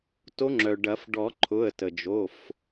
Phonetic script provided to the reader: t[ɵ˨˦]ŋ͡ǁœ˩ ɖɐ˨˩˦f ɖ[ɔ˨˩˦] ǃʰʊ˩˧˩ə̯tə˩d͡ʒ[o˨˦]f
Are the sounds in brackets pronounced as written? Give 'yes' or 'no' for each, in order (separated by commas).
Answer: no, yes, no